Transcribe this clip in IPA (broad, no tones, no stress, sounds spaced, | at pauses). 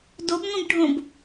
d o b ŋʷ ĩ b ɖʱ õ b